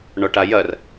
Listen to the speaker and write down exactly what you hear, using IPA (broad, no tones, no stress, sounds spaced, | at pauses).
ɳ ɔ ʈ a j ɐ r